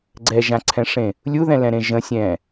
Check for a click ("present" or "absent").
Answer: present